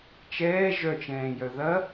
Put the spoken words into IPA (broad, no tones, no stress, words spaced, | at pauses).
t͡ʃɛː ʒœt͡ʃɛ̃ːjœ ðɐ